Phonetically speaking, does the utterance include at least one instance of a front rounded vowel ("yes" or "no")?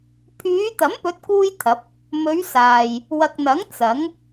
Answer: yes